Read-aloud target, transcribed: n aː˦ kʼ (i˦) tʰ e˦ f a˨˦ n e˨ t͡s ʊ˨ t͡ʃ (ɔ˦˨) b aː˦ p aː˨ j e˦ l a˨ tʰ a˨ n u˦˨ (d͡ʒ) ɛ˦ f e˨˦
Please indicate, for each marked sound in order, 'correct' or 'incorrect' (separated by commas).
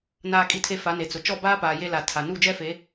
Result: correct, correct, correct